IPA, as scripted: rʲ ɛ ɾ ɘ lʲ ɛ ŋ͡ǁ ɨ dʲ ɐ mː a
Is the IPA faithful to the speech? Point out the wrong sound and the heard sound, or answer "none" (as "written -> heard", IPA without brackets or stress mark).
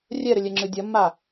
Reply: none